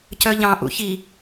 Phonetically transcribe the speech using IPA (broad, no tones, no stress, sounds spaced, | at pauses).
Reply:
c œ ʎ ɑ̃ ʔ ṵ ç i